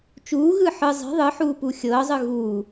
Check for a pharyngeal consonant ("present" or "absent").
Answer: present